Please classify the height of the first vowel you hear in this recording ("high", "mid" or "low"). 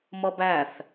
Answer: mid